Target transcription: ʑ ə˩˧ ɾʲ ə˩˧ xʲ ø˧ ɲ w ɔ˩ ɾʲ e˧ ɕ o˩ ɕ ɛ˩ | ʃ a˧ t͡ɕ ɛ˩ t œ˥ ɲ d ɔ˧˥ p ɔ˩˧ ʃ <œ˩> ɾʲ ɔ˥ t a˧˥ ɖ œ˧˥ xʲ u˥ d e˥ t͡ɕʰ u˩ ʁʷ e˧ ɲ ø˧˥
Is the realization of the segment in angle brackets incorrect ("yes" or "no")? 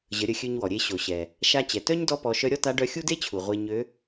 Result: yes